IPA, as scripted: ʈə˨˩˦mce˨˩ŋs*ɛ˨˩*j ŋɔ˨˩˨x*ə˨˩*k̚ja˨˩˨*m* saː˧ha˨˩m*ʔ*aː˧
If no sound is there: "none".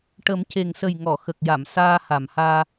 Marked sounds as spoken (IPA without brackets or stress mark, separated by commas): ə˨˩, ə˨˩, m, h